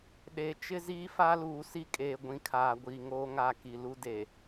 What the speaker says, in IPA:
ɗ e˨ t͡ʃ ɪ˦ z iː˦ f a˦ l uː˨ s i˦ kʼ eː˨ ɡʷ ĩ˨ kʰ aː˨ ɡʷ iː˨ ŋ oː˦ ŋ a˦˨ k i˨ l u˦ d e˨

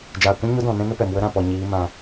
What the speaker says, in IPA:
d͡ʒ aː˨ kʷ ũ˦ ɲ o˦ d ɔ̃˨ n ɛ̃˦ n ə˦ p ɛ˨ m w ə˦ ɾ ã˨ p ɔ˨ ɲ iː˨˦ m ã˧

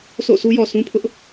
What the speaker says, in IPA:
s o̰˦˨ sʰ u˦ j ɔ˨ s ũ˦ pʰ ʊ˦ ʔ

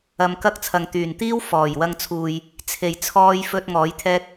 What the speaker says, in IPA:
ɐ˧ m k ɐ˥ k̚ t͡sʰ ɐ˨ ŋ t̪ yː˨˩ n t̪ iː˥ w f ɔː˨˩ j w ɐ˧ ŋ t͡sʰ uː˨ j | t͡sʰ e˨˩ j t͡sʰ ɔː˧ j f ɵ˧ t̚ ŋ ɔː˨˥ j t̪ʰ ɛː˥ k̚

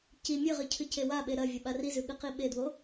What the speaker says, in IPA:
c i mʲ ɨ ʁ ɨ cʰ ɨ c e w a ɓ e ɾ ɐ vʲ ɐ ɓ a r i z ʉ ɠ ɨ q i ɓ e d w o

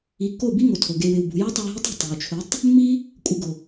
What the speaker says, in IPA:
i˨ kː o˦˨ b i˦ ŋ o˨ tʰ o˨ ɡ e˧ w ɪ˨ w b ṳ˨ j u˦ tˤ o˧ j ɦ ɪ˦ tˤ ṳ˦˨ tˤ e˨ w t͡ʃʰ ʊ˨˦ tˤ | mː i˦ | kʷʼ ɪ˧ ɡ ʊ˨

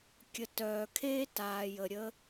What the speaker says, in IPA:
kʲ ə˨ t œː˨ kʰ eː˦ t aː˨ j ə˨ ɾʲ ə˦

